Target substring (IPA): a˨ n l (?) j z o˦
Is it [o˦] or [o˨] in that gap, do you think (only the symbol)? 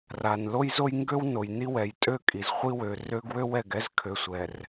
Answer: o˦